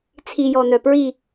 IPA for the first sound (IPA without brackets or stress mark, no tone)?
t͡sʰ